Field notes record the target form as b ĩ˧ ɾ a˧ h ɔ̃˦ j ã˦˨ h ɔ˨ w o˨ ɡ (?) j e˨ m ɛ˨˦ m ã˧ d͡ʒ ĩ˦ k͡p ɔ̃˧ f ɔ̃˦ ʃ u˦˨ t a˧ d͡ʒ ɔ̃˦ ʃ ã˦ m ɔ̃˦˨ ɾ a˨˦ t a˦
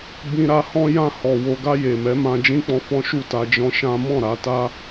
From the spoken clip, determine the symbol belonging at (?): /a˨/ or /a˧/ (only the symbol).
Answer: a˧